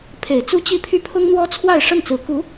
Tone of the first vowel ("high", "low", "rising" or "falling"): low